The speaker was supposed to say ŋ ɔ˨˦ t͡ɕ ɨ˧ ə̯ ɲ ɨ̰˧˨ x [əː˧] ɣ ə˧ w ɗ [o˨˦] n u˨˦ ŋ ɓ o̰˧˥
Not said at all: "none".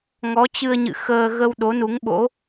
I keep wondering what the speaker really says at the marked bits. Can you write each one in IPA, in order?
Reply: əː˧, o˨˦

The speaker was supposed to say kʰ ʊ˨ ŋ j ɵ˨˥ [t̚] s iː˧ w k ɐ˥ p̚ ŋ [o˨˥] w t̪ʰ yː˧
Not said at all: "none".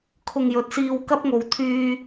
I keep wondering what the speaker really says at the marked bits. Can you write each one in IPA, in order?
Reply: t̚, o˨

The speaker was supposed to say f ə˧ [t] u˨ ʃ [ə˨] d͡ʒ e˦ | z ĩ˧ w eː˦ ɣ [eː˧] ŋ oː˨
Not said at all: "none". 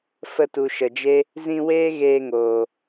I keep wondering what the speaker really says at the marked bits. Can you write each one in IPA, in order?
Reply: t, ə˨, eː˧

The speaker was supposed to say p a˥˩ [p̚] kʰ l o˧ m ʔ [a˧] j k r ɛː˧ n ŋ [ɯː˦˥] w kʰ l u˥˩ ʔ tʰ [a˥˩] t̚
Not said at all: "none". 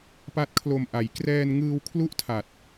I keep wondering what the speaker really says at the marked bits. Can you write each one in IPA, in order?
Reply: t̚, a˩˦, ɯː˧, a˨˩

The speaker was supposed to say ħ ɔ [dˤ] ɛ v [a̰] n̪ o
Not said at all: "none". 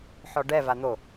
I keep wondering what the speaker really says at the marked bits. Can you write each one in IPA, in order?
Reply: ɖ, a

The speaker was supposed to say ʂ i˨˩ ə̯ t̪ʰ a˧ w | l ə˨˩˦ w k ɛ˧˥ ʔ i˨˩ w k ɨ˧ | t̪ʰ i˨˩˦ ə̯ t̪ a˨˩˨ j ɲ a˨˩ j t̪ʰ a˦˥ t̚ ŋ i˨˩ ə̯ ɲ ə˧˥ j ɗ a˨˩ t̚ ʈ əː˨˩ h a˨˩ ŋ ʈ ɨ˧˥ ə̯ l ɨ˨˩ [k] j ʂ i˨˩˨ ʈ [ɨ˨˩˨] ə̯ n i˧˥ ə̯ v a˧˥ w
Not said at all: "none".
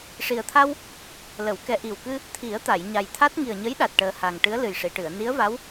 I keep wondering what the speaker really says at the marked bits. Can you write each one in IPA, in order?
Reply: none, ɨ˨˩˨

